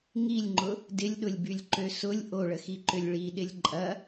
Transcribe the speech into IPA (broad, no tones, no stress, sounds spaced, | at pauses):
ŋ i lʲ ŋ͡ǃ ʊ | d ɪ lʲ ɗ ʊ lʲ b y lʲ ǃ ø s ʊ lʲ ʔ o ɭ ə x i ǃ ʏ lʲ ɭ i ɗ ɪ lʲ ǃʼ ɐ